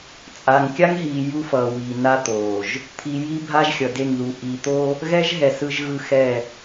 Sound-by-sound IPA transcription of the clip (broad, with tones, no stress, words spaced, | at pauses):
t͡sʼa˨ŋkʲa˦ŋɦiː˨ ju˦fʌː˨wiː˨ na˦t̪oː˨ʒ | t̪ʰi˨ji˦ bʱa˦ʒxʲʌ˨de˦˨ŋðu˨ ʔi˨t̪o˦ | ɣɛ˦ʒɦɛ˨ sɯ˨ʒɣɯ˨ xɛ˦˨